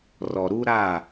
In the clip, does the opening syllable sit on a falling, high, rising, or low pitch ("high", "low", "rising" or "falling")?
low